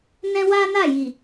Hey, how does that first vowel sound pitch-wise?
high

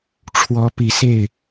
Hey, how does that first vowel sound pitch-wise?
rising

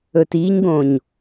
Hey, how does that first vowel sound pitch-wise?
low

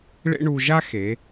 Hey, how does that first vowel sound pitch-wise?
high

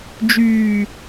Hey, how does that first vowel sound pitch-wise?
low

